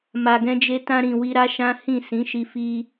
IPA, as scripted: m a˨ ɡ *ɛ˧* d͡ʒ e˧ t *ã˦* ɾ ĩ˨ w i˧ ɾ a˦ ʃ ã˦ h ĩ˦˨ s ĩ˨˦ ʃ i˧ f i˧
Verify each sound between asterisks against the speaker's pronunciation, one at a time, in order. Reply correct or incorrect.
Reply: incorrect: ɛ̃˧, incorrect: ã˧

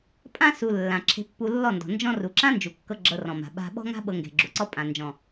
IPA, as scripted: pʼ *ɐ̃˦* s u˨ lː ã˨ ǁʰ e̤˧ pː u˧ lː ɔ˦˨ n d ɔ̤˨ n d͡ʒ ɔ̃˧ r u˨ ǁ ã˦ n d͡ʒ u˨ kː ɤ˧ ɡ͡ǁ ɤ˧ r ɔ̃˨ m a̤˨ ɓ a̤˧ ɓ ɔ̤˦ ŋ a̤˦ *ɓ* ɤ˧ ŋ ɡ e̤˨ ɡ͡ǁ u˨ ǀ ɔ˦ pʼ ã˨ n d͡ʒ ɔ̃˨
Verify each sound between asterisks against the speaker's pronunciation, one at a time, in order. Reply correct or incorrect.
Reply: incorrect: ã˦, correct

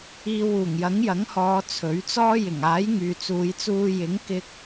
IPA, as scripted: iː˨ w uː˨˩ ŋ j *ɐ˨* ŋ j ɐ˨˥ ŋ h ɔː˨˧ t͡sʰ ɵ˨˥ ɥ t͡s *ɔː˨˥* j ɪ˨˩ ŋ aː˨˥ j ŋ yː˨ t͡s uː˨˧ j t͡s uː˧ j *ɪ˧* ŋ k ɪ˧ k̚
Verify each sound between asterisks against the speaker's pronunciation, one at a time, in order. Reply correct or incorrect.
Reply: incorrect: ɐ˨˥, incorrect: ɔː˥, incorrect: ɪ˨˥

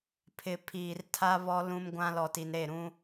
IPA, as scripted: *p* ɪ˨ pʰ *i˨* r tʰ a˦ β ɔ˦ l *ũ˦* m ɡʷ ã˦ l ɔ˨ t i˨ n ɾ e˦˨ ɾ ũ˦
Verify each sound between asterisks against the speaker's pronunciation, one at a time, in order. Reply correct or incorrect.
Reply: incorrect: pʰ, incorrect: iː˨, correct

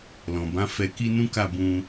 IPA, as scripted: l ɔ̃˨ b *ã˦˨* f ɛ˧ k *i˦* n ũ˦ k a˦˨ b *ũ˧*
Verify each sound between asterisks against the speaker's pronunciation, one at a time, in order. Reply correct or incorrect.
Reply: incorrect: ã˨˦, correct, correct

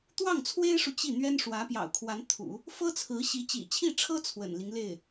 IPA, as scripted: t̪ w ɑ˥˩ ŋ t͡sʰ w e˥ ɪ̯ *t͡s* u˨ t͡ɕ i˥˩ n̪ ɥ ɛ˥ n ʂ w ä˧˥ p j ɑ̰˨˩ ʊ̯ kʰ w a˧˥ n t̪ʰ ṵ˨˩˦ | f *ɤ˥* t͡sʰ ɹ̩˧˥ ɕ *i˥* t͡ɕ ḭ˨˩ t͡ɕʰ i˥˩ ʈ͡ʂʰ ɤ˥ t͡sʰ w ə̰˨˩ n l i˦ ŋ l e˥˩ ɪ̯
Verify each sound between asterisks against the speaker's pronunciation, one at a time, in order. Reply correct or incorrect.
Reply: incorrect: ʂ, correct, incorrect: i˧˥

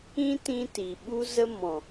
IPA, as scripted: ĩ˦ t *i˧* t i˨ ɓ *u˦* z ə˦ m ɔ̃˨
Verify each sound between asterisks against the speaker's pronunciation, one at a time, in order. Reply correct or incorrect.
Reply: incorrect: ĩ˧, correct

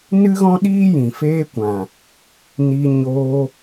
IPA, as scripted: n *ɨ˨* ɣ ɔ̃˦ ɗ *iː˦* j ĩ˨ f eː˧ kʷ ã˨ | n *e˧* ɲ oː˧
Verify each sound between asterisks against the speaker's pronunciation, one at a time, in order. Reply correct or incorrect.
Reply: incorrect: ɨ˦, correct, incorrect: i˧

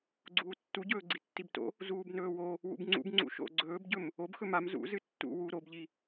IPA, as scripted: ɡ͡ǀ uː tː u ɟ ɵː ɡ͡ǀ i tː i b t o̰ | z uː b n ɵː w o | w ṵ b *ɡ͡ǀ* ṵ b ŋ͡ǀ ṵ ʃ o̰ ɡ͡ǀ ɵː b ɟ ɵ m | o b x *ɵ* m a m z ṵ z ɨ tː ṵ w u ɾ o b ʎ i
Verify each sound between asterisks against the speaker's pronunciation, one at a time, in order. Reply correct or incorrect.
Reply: incorrect: ŋ͡ǀ, correct

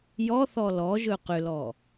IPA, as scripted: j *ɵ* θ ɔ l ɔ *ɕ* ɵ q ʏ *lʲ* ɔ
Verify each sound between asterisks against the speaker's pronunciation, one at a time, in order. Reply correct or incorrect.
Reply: incorrect: ɔ, incorrect: ʒ, incorrect: l

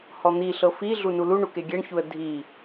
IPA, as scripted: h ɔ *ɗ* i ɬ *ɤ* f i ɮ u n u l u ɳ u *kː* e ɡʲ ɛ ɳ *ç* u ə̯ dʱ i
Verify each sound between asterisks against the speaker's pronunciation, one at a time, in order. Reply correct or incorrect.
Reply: incorrect: n̪, correct, incorrect: k, correct

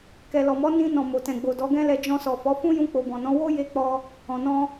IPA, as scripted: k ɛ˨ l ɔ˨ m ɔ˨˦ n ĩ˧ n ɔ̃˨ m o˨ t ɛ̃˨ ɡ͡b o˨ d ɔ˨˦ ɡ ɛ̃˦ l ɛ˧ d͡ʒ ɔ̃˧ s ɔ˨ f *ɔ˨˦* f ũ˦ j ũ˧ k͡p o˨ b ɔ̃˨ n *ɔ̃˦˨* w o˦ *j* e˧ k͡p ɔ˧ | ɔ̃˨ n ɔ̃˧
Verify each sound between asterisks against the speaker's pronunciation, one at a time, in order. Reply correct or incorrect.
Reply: correct, incorrect: ɔ̃˨˦, correct

